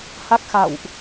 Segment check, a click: absent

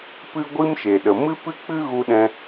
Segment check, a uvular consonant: absent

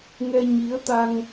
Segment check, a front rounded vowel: absent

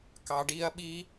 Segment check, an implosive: present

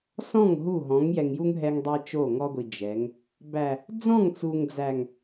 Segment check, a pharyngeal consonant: absent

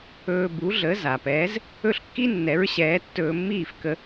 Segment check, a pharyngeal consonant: absent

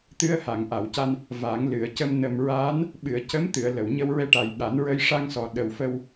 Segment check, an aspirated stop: absent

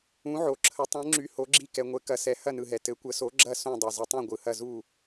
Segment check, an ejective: absent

